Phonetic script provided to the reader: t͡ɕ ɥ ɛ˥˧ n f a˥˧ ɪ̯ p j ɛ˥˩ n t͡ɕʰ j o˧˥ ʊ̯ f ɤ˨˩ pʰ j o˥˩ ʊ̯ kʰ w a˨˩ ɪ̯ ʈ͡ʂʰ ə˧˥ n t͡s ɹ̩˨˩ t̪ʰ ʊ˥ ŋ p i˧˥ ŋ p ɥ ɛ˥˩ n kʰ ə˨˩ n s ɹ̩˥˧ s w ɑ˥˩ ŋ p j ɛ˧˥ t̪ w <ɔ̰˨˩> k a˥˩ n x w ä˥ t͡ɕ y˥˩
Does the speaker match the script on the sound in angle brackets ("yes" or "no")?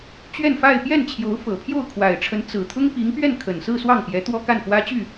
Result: no